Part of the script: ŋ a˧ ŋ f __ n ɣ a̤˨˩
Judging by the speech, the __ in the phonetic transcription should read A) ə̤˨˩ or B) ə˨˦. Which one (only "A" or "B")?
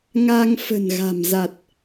A